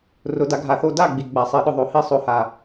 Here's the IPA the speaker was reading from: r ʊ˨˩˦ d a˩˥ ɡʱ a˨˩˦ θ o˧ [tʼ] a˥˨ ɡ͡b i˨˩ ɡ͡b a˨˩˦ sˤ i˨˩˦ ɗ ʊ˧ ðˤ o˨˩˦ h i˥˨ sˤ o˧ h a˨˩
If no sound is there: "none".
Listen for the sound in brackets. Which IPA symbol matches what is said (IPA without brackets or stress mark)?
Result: d